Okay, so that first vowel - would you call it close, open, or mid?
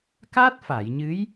open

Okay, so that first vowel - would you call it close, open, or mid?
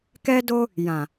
mid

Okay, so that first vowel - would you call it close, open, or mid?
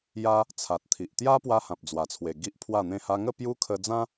open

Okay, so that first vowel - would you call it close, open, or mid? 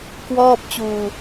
mid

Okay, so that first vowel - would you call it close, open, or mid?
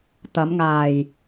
open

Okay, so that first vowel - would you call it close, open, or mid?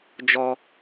mid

